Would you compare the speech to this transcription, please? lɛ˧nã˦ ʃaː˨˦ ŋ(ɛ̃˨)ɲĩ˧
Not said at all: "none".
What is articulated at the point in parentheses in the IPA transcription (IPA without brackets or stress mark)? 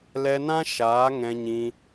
ɛ̃˧